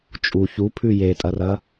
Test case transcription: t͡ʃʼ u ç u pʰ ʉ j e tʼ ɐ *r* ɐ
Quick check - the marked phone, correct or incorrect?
correct